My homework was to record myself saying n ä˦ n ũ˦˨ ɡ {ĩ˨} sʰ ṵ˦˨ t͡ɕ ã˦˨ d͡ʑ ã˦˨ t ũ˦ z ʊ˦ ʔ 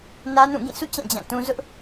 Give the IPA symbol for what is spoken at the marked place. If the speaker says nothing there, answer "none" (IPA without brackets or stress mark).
ĩ˦˨